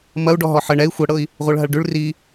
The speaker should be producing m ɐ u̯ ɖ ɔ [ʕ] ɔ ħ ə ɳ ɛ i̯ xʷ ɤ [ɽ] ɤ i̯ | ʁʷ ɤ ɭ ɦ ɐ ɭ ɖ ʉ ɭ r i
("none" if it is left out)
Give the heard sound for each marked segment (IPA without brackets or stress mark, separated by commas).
ɦ, ɽ